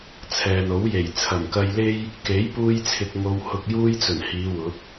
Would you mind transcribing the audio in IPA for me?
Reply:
t͡sʰ ɛː˨ n o˨˥ w j e˨˩ j t͡sʰ ɐ˨˩ m k ɐ˧ j l e˥ j | k e˨˥ j p uː˧ j t͡sʰ ɪ˨ k̚ ŋ o˧ w h ʊ˧ k̚ j uː˥ j t͡s ɵ˨˩ n h iː˨˧ w ʊ˨˥ k̚

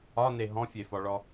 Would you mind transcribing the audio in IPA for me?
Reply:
ɒ n e ɦ ɔ̃ fʲ e f ɒ ɭ ɔ

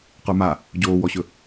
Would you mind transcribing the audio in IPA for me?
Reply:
q ə˞ m a | ɟ oː w ɔ ɕ ɵ

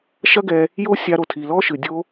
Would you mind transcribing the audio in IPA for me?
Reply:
ʃ ɐ˦ ɡ ɛ˧ | j o˦ sʲ a˧ ɾ o˨ tʰ i˨ l ɔ˦ ʃ ɨ˨ dʲ o˧

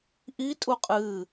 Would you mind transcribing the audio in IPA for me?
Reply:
ʔ i tʼ u qʼ ɨ

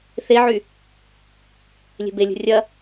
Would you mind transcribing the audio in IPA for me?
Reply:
θ e ʕ y | lʲ e̤ b e lʲ ṳ rʲ ɐ

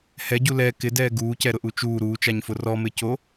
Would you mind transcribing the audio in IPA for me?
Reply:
h ɛ ɟ u l ɛ k ɪ d ɛː ɡ uː c ɛ ɾ ʊ ʔ u t͡ʃ uː ɾ uː t͡ʃ a ɲ f ʊ r ɔ m ɪ c o

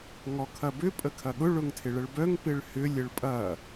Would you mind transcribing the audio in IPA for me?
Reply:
ŋ ɔ kʰ ɐ b ʏ pʼ ə kʰ ɐ ɠ ʊ ɭ ʊ ŋ tʰ ɪ ɭ ə ɭ b œ ŋ p ɪ ɭ h ʏ lʲ ə ɭ pʼ ɐ

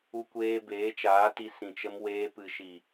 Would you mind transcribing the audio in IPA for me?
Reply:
u˧ kʷ eː˧ b eː˨˦ t͡ʃ aː˨˦ t i˧ s ĩ˨ t͡ʃ ə˧ m w eː˧ p ɨ˨ ʃ i˨

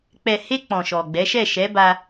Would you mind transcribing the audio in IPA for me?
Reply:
k͡p ɛ˨ h e˧ k͡p ɔ̃˨ ʃ ɔ˨ ɡ͡b ɛ˨˦ ʃ ɛ˦˨ ʃ ɛ˨˦ b a˧

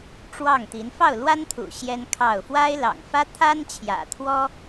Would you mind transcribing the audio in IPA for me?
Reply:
ʈ͡ʂ w ɑ˥˩ ŋ t̪ i˧˥ n f ɑ˥˩ ʊ̯ l w a˥ n t̪ʰ ṵ˨˩ ɕ j ɛ˥ n kʰ ɑ˥˩ ʊ̯ f w a˥ ɪ̯ l ɑ̰˨˩ ŋ f ä˥ t̪ʰ a˥ n t͡ɕʰ j ä̰˨˩ t̪ʰ w ɔ˥

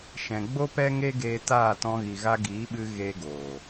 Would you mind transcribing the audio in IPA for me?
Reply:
ʃ ɛ̃˨ ɡ͡b o˦ p ɛ˦ ŋ e˦ ɡ eː˧ t aː˦˨ t ɔ̃˧ ɣ i˨ ɣ a˧ ɡ iː˨˦ ɓ ɨ˧ ɣ e˧ ɡ oː˨

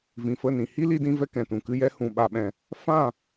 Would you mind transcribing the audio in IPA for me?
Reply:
v ĩ˨ f ə˦˨ n ĩ˨ h i˦ l i˧ d ĩ˧ v ɛ˧ k ɛ̃˨ t ũ˨ k ɨ˧ j ɛ˧ h ũ˨ ɓ a˨ ɓ ɛ̃˨ | f ã˦˨

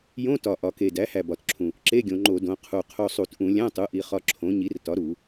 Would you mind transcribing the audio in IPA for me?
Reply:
j õ˧˥˧ t ɒ˨˩ ʔ ɒ˩˧ k e˨˩ d æ˩˥ h æ˨˩ b ɒ˨˩ t ǁʰ ũ˨˩ | ǁ e˧˥˧ ɡʲ õ˩˧ ŋ͡ǃ o˧˩˧ d õ˩˧ qʰ u˨˩ qʰ o˧ sˤ u˧˩˧ t ʔ ũ˧˩˧ lʲ æ̃˧˥˧ tˤ u˩˥ ʔ i˩˧ χ ɒ˧ ǁʰ õ˩˥ ɲ i˩˥ r t ɒ˩˥ ɾ u˧˩˧

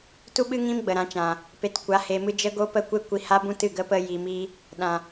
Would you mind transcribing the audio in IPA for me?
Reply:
t u˦ ɓ ɨ˦ ŋ ĩ˦ m ɡ͡b ə˨ ɾ ã˨˦ t͡ʃ ã˨ | p e˨ t kʷ a˨˦ h e˧ m ɨ˦ d͡ʒ ə˦ ɡ o˦ p ə˦ kʷ e˦ kʷ i˧ h a˦ b ũ˦ t ɨ˦˨ ɡ ə˦ p ə˦ j i˧ m i˦ | ɗ ã˨

